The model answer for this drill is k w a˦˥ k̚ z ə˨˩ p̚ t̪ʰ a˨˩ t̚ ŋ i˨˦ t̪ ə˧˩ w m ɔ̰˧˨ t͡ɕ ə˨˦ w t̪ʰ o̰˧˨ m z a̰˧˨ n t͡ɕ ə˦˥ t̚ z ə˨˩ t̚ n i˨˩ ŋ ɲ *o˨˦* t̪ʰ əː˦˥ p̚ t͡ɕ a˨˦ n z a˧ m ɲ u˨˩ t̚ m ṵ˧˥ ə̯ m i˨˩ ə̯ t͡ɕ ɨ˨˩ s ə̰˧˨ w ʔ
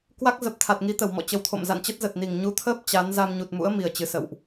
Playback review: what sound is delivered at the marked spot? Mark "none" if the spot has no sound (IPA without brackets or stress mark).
u˨˦